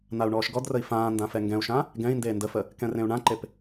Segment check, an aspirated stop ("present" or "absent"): absent